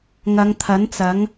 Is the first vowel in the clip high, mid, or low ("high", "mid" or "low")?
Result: low